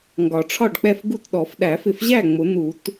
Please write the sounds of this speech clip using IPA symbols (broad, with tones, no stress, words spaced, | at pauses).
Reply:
ŋɡɒ˨˩˦ʈ͡ʂʰɒ˥˨ɖk͡pɛ˥˨f ɡu˥˨tɗɔ˨˩˦f ɗæ˨˩˦fɪ˨˩fʑæ˥˨ ŋ͡mʊ˨˩˦n̪u˨˩˦t